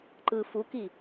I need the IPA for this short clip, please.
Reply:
ǃ ɯ f u k i

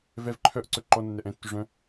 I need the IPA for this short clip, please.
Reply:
v ɛ v ǃʰ œ ʔ ǀ ɵ ǃ ɔ nː ɛ ʔ ɛ̃ tː ʉ ʐ œ̃

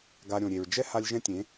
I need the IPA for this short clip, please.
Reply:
ɡ a˧ ɾʲ õ˨ ɾʲ e˨ ɹ d͡ʒ ɛ˦ h a˧ lʲ ʒ ɛ̃˦ tʲ ẽ˨˦

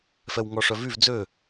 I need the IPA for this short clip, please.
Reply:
f ɛ w ŋ ɔ ʂ œ v y v d͡z ø

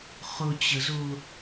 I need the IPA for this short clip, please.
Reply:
χ ʊ t͡ɕ ə z ʊ

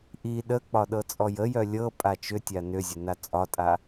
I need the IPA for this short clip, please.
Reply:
ʔ i ɗ ə k͡p ɒ ɗ ɤ t͡sʼ ɔ j ə j œ lʲ ɤ pʼ a t͡ʃ ʏ tʲ a n ʏ zʲ ə n a t͡sʼ ɒ tʼ a

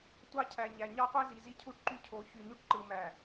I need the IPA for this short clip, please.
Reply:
tʷ ɑ˦ cʰ æ˨ ɲ æ˨ ɲ ɑ˦ qʷ æ˦ z i˨ z i˦ cʰ u˦ ʈ ǃ y˦ cʰ o˨˦ ç y˨ ɲ y˦ ʈ ǃ ɯ˨ m æ˨

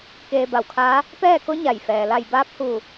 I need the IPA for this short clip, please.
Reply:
k eː˧ b a˧˩ w kʰ aː˧˥ | p ɛː˥˨ k o˧˥ ɲ a˧˩ j f ɛː˩ l a˧˩ j b aː˧˥ p̚ h u˧˩

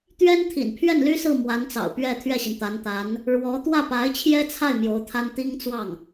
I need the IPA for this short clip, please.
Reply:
t̪ ɥ ɛ˥ n t̪ʰ ḭ˨˩ n pʰ ɥ ɛ˥˩ n l y˥ s ɹ̩˥˩ m w a˧˥ n t͡s ɑ̰˨˩ ʊ̯ p ɥ ɛ˥˧ t̪ʰ ɥ ɛ˥˩ ɕ i˩ n t̪ a˧˥ n t̪ a˧˥ n | ɻ w ɔ˧˥ t̪ w ä˥˩ p a˧˥ ɪ̯ t͡ɕʰ j ɛ˥ t͡sʰ a˥˩ ɪ̯ m j o˧˥ ʊ̯ t̪ʰ a˥ n t̪ i˥ ŋ t͡s w ɑ˥˩ ŋ

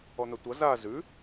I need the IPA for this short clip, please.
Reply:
ɔ n̪ ɐ tʷ ʌ z a z ʉ

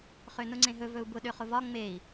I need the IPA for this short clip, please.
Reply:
χ ø n ʊ ŋ͡ǀ ẽ ɦ ɵ v ɵ u̯ b ʊ ɗ ø χ ʊ v ɒ ŋ͡m e i̯

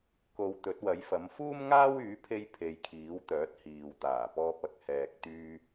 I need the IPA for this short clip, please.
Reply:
k o˨ w t̪ ɵ˨˥ t̚ w ɐ˨˥ j f ɐ˨˥ m f uː˥ m ŋ aː˥ w yː˨˥ pʰ e˧ j pʰ e˨˧ j kʰ iː˨˥ w t̪ œː˨˥ t̚ h iː˨ w t̪ aː˨˩ p ɔː˧ p̚ ɐ˨˥ k̚ h ɛː˧ k̚ t̪ yː˥

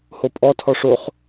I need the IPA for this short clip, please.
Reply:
h o pʼ ɔ tʰ ɔ ʂ o χ

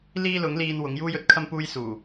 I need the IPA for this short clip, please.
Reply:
l iː˥ l ʊ˨˥ ŋ l iː˧ n w ʊ˨˥ ŋ j uː˥ j ɵ˥ t̚ kʰ ɐ˥ m p uː˥ j s uː˨˩

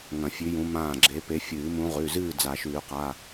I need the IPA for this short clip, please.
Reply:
ŋ ɐ̃˨˩˦ fʲ ʉ˨˦ j ũ˨˦ m ãː˧˩ ɡ͡ǁ e˨˦ p e˨˦ fʲ ɨː˨˩˦ m ũ˨˦ ʁ ʉ˩˧˩ z ɨː˥˨ d͡z a˨˩˦ ʃ ʉː˨˩˦ q a˩˧˩

